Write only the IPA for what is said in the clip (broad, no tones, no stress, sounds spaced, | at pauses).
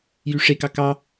j y ʂ e k ɑ k ɑ